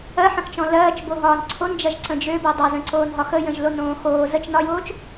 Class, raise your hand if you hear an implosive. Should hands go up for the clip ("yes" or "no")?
no